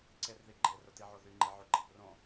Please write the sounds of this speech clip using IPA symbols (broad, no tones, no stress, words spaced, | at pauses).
ǀerðiɡ͡ǃe rʊtiʕoðy ŋ͡ǃeʕoɡ͡ǃĩprõ